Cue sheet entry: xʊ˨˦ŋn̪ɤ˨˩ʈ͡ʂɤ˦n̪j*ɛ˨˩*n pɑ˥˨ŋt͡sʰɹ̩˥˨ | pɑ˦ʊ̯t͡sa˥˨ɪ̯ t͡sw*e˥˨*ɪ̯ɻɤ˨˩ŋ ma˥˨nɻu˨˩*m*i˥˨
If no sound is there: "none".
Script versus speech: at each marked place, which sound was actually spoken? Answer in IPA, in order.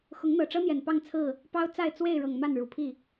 ɛ˨˩, e˥˨, pʰ

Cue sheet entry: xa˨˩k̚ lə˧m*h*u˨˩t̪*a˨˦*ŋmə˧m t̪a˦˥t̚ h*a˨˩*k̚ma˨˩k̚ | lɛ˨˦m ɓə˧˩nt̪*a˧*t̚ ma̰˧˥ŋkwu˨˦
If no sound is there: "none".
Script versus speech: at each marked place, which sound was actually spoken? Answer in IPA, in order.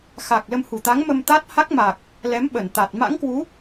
h, a˨˦, a˦˥, a˨˩

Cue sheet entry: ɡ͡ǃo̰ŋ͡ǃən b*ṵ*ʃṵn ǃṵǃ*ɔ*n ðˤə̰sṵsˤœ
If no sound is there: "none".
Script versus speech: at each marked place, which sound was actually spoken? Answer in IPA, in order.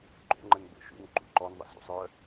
o̰, ɔ

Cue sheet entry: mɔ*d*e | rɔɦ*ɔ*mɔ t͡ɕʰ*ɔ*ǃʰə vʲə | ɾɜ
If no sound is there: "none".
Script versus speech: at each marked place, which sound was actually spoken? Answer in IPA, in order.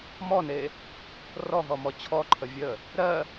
n, ɔ, ɔ

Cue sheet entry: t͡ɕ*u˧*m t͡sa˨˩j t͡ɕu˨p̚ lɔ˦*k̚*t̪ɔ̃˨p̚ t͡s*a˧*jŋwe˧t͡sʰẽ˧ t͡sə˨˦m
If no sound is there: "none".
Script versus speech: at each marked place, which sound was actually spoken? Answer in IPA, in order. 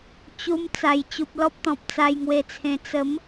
u˧, p̚, a˧

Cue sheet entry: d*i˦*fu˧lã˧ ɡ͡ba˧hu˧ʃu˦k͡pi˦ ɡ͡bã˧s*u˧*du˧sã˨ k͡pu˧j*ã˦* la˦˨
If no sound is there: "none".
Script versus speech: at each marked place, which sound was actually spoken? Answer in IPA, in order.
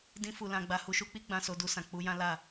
ĩ˦, o˧, ã˦

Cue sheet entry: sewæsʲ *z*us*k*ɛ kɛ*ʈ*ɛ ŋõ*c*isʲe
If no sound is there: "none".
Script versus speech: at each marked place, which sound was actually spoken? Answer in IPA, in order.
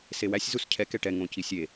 z, cʰ, ʈ, c

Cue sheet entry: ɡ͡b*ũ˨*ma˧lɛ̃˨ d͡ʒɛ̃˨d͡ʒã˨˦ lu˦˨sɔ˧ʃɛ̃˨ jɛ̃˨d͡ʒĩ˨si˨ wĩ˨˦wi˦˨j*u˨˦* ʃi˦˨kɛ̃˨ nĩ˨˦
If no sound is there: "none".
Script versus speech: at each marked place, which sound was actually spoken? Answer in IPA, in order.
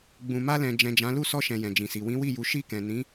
ũ˨, u˨˦

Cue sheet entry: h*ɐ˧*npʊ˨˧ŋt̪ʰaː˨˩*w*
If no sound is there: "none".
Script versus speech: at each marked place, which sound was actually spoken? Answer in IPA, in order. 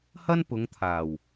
ɐ˥, w

